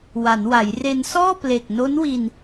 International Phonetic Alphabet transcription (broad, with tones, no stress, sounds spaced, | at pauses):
w a˩˦ n w a˩˦ j r e˧ n s ɔː˥˩ p l e˨˩ k̚ n o˦˥ n w i˧ n